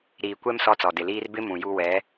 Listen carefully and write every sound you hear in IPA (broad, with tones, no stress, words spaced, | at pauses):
ɾiː˨kʷɛ˦m sɔ˦t͡sɔ˨ dɪ˨liː˦r bɪ˦ mũ˨ju˦ wɛ˨˦